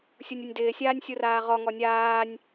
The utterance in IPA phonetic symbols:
sʲ u nʲ o nʲ d ɪː sʲ aː nʲ sʲ u r aː ʁ ɔ ŋ ɔ nʲ aː nʲ

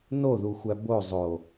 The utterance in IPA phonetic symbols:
n o ð u xʷ æ b o zˤ o

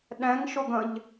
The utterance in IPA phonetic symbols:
ɗ ɛ̃ ŋ ʃ ʊ ɡ ə̃ ʎ

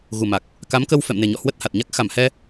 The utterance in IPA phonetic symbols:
ɣ u˨˩ m a˨˩ k̚ | k a˨˦ m k ə˧ w f ɛ̰˧˨ m n e˨˩ ɲ ɔ̰˧˨ h w ə˦˥ t̚ h a˨˩ t̚ ɲ a˦˥ k̚ x a˧˩ m h ɛ˧

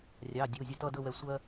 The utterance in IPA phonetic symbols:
rʲ ɑ˩˧˩ dʲ o˩˧˩ zʲ ə˧ t ʌ˥˧ d ɵ˥˧ w ɛ˧ sʷ ɜ˧

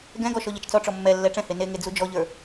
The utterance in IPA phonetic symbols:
ɡ ɛ̃ ɡ ɔ ʃ ɔ ʎ ɛ t͡ʃ t͡s ɔ ʈ͡ʂ ɔ mː ɛ lː ɛ ʈ͡ʂ ɛ̃ h e n e ŋ e d͡z u d͡ʒ ɔ ʎ ə˞

